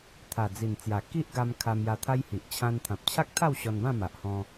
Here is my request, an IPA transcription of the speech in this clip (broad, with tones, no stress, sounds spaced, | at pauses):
t̪ʰ a˨˩ d͡z i˨˩ n t͡s j a˨˩ k i˦ ʔ ɡ a˧ m kʰ a˧ m j a˧ t̪ʰ a˦ j h i˨ ʔ t͡ɕʰ ã˧ n t̪ʰ ã˨ p̚ t͡ɕʰ a˦ k̚ t̪ʰ a˥˧ w ɕ ɔ˧ n b ã˥˧ m a˨ ʔ h ɔ̃˧